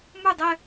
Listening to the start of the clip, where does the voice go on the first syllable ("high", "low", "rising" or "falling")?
falling